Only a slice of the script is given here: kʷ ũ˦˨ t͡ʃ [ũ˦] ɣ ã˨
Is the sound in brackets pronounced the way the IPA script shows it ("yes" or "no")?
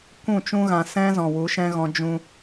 yes